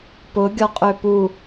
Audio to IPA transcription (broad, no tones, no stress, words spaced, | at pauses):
pʊ ɡʲɔqʼøpu